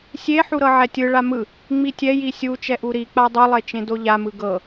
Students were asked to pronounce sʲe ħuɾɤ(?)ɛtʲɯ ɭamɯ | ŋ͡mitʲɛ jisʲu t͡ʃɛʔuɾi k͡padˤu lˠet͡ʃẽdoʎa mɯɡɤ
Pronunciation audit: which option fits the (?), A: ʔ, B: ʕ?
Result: B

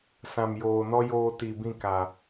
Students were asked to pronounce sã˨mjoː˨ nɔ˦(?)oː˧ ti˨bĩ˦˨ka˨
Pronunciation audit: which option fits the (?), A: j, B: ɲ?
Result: A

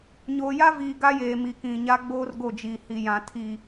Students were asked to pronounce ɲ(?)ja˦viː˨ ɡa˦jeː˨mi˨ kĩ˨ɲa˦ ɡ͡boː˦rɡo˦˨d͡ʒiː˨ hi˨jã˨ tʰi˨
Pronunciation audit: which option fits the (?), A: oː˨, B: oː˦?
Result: A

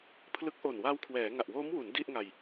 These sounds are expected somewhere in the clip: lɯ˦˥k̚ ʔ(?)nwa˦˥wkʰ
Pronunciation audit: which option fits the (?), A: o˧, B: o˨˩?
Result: B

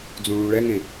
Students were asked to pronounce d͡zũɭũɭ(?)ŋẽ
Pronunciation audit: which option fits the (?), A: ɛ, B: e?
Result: A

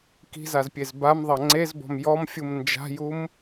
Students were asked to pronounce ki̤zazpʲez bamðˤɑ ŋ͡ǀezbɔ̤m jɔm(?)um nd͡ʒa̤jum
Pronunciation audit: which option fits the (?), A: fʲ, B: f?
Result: A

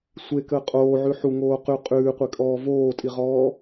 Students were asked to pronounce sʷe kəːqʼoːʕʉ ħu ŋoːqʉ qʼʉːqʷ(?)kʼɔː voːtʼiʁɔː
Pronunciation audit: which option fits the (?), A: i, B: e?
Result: B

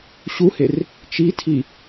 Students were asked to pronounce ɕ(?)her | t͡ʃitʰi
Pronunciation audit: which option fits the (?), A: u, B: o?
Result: A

